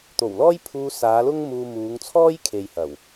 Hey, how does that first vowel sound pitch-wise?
low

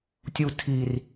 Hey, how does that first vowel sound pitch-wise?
low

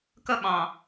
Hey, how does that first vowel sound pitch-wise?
high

